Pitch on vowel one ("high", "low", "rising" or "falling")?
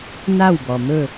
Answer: falling